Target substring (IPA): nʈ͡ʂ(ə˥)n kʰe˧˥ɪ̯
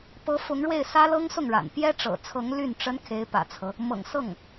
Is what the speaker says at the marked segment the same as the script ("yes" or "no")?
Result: yes